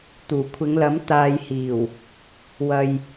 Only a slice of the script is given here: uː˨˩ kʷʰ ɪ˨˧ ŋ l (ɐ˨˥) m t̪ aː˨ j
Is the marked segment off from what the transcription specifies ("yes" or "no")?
no